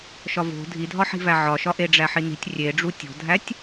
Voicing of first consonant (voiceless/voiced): voiceless